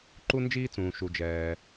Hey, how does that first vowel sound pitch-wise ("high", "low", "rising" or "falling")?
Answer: high